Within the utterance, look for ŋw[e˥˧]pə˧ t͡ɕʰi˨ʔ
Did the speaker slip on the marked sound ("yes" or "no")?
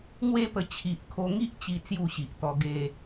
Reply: no